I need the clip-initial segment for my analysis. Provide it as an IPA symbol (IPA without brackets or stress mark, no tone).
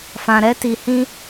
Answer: f